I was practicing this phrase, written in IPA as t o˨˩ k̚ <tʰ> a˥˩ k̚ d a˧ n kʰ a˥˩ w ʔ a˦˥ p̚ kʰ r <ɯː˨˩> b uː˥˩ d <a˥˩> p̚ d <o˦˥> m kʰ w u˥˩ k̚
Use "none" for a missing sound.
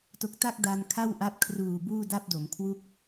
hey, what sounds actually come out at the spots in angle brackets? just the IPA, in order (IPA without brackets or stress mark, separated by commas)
t, uː˨˩, a˥˩, o˩˦